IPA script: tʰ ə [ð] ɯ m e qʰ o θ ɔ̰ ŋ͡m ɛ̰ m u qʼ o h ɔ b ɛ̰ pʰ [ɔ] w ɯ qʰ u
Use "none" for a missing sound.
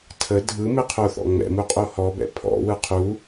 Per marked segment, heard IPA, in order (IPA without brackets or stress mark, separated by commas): dʱ, ɔ̰